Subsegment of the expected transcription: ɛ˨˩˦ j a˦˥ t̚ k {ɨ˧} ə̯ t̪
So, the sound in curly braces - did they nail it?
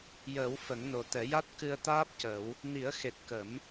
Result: yes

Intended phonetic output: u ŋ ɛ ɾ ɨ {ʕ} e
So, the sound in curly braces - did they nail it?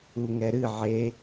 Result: yes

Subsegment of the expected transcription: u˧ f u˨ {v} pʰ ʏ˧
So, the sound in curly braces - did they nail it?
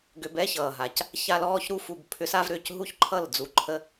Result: no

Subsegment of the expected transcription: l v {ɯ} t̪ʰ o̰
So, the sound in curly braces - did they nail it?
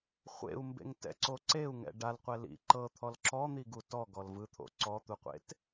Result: yes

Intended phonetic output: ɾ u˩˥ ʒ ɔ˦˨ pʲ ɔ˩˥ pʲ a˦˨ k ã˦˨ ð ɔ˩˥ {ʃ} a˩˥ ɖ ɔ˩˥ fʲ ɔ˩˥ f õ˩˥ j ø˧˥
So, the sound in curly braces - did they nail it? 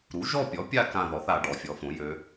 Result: no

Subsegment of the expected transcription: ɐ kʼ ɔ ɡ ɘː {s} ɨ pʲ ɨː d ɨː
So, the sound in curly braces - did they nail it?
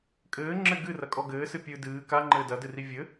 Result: yes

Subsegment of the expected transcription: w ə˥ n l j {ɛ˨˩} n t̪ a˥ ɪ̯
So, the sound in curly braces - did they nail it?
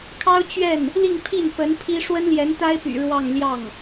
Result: no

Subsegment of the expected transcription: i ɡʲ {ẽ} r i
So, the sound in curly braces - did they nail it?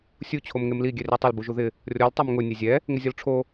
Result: no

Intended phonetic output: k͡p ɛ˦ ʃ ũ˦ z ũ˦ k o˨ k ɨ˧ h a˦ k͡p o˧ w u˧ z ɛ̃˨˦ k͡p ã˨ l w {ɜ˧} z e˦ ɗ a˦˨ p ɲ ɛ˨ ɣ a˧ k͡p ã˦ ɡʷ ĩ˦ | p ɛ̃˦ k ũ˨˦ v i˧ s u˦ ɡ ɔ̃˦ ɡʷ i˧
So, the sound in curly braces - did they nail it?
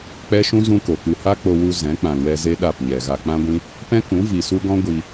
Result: no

